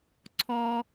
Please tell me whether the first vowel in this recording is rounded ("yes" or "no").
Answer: yes